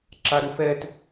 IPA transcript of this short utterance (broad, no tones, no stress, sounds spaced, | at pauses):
ǁ a ɾ u f ɛ t